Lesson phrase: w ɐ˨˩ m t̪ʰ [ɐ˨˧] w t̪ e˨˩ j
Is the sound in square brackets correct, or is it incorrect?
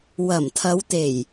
correct